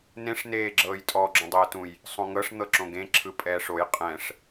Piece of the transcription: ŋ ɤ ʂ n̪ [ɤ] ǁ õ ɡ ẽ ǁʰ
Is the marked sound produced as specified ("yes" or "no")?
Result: yes